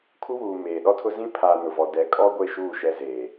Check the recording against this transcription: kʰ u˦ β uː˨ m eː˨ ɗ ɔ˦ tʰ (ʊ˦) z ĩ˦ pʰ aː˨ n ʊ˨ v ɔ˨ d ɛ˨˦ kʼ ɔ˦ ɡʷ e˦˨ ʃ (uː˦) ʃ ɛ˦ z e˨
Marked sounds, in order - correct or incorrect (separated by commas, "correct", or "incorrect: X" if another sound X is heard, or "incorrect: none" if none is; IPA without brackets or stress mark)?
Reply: correct, incorrect: uː˦˨